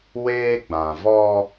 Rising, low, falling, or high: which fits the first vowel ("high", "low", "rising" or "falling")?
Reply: high